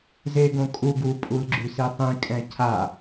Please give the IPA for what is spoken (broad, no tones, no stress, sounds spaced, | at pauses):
z e ɡ õ kʼ u ɡ u pʼ u l ɡ͡ǁ y s i tˤ ĩ kʼ ɛ̃ cʰ a